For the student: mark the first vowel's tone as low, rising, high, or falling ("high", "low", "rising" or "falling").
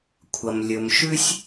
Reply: low